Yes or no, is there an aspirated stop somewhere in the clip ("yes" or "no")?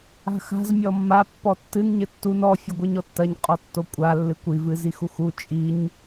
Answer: no